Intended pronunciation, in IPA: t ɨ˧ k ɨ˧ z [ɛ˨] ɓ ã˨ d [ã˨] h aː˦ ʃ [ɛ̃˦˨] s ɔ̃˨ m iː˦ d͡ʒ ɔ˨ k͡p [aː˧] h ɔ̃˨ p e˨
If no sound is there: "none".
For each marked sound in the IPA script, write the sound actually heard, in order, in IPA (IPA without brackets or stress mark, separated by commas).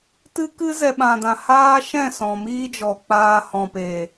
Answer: ɛ˨, ã˨, ɛ̃˦˨, aː˧